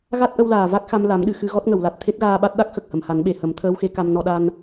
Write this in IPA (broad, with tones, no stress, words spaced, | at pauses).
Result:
ɣa˦˥t̚ʔə˧wlaː˨˩ va˦˥k̚xa˧mla˨˩˦mɗɨ˨˩˨ xɨ˧ɣɔ˦˥t̚ŋə˨˩˨wla˨˩t̚ t̪ʰe˦˥t̚ɣaː˧ɓa˦˥t̚ɗa˦˥k̚ xə˨˩k̚hə˨˩˨m ha˨˩˦nɓe˨˩˨hə˨˩˦mt̪ʰəː˧˥w xe˧˥ka˧m nɔ˧ɗa˧n